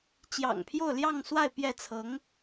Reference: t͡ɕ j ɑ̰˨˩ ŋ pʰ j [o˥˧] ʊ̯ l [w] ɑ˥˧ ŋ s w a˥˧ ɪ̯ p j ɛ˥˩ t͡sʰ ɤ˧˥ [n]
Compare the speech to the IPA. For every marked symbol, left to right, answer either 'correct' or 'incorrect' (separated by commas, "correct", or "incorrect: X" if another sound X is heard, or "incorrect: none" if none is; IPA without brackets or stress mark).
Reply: correct, incorrect: j, incorrect: ŋ